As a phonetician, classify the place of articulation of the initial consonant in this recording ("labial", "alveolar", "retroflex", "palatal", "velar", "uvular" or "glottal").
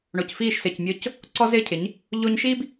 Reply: retroflex